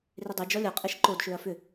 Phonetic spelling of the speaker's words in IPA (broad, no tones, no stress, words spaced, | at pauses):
rɪdˤe d͡ʒɔlʲɔqʼeʃ ǃod ʃøɐ̯fʏ